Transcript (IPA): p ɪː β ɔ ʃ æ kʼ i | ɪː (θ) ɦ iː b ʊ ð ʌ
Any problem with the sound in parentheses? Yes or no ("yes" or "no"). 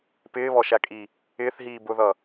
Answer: no